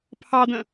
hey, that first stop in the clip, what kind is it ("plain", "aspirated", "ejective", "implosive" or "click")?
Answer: aspirated